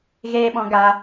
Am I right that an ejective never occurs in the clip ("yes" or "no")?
yes